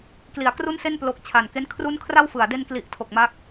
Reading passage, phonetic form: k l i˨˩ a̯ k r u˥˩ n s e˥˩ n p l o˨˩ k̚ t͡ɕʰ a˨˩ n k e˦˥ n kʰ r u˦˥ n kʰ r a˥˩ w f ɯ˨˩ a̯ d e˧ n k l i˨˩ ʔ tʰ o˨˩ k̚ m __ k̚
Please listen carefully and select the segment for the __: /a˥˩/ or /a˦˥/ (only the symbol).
a˦˥